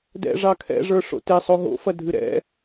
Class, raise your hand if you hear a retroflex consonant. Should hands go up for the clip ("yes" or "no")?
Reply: yes